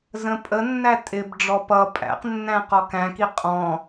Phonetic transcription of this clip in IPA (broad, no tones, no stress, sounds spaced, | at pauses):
z ə̃ pʼ ə nː æ tʼ ɪ b ɖ͡ʐ ɔ p ʌ pʼ æ̰ q nː æ̃ q ɔ k æ̃ k i qʼ ɔ̃